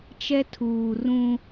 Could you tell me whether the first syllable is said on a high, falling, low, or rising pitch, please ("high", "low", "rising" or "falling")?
high